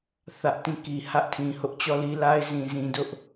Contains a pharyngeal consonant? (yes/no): no